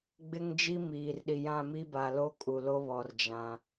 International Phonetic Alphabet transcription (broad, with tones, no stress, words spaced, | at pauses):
ɡ͡bɪ˦ŋd͡ʒi˦ miː˨rɗi˨jã˦˨mi˦ ba˨lo˦ kʼu˨lo˦βɔ˨r d͡ʒã˦